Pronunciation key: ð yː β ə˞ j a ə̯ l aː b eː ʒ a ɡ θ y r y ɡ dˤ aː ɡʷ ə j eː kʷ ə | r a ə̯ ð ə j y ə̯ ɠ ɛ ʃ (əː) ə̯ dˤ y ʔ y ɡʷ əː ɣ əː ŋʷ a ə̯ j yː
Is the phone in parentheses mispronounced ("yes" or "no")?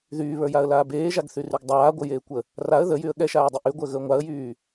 yes